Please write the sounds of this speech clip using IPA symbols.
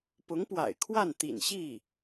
p ʊ˧˥ ŋ p w a̰˨˩ ɪ̯ kʰ w a˥˩ n t̪ ḭ˨˩ n ɕ i˥˩

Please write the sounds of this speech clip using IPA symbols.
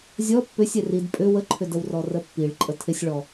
zʲ ɔ pː ʏ sʲ ɛ r i d pʼ ʏ w ə ǃʰ ʏ d ə w r ɔ r ə pː i ɭ ǃʼ ə tʰ ɪ sʲ ɭ ɔ

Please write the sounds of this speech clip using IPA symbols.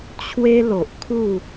t͡ɕʰ w e˦ l o˨ ʔ kʰ u˥˧

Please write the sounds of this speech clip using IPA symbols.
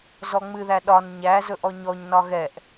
z ɔ ŋ͡m ɨ ð æ ɗ ɒ n ɲ æ z ɵ ʔ ɔ ɲ ɔ ɲ n ɒ ɣ ɛ ʔ

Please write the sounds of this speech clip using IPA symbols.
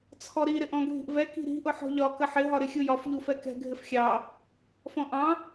t͡sʰ ɔ ɾ i ɾ ɪ ʔ ɔ̃ ɡʱ i̤ ʔ v ɛ k i̤ ɾ i̤ ʔ ʊ ħ ɔ̤ ʎ ɒ k ə ħ ɪ ɦ ɒ ɾ ɪ xʲ u j ɒ f ʎ u f ɛ k ɛ̤ ɡʱ ɪ f xʲ ɑ | f ɔ̃ ʔ ɑ̃

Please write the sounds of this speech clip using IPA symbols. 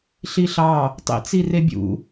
ɬ i ɬ ɑ | tˤ ḭ t͡s i r e bʲ ṵ

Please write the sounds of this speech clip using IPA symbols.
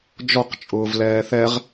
d͡ʒ ɔ q t͡ʃʼ ʊː v l ɛː θ ɛ ʁ

